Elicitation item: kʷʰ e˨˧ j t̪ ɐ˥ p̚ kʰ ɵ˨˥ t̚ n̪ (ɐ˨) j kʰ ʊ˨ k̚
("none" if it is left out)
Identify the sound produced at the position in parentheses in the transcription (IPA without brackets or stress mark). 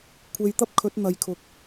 ɐ˨